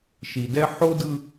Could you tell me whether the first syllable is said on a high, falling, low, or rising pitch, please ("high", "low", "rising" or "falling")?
low